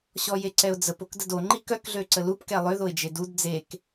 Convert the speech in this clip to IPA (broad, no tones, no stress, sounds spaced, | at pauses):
ɕ ɔ j e ǀ ɛ ʊ̯ d͡z ə p o k d ə d o ŋ͡ǃ i k œ k ɮ ø ǀ ə l u p k ɛ lˠ ø ð o ɪ̯ d͡ʒ e d u d d͡z e k